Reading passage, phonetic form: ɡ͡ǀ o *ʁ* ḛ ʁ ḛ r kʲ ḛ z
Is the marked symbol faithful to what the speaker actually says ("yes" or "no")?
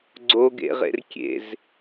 no